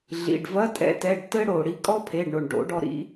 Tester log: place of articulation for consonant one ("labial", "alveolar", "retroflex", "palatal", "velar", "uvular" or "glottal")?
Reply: alveolar